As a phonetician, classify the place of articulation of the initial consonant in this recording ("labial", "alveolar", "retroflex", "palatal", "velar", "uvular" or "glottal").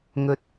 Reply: velar